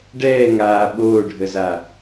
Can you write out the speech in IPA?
ɖɛː ŋaː ɓoːɖʱəza

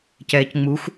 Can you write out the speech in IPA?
cɛːcŋ͡muxʷ

